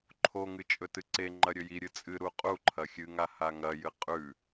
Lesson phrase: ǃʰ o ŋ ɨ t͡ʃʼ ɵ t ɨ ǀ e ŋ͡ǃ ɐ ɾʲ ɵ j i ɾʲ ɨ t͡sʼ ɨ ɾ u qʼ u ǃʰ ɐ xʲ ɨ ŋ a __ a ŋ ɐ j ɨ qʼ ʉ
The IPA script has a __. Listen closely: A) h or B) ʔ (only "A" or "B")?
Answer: A